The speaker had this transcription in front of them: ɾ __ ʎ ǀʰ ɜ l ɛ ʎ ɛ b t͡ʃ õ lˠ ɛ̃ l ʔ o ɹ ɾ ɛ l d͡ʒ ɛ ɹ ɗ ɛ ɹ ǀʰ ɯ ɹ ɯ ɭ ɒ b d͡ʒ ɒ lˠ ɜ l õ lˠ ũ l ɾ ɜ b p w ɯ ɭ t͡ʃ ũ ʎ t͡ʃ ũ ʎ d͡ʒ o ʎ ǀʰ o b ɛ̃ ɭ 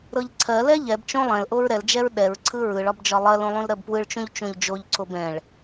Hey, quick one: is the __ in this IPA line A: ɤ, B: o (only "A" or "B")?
A